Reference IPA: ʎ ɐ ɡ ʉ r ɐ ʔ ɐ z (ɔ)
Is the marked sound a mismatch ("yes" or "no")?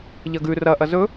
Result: yes